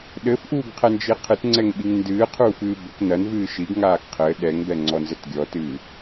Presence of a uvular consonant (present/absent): present